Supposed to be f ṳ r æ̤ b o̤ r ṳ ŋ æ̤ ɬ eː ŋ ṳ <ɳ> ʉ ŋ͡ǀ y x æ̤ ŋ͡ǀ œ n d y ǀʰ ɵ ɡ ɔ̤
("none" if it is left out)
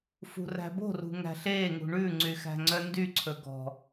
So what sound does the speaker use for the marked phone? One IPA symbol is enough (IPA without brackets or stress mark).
ɳ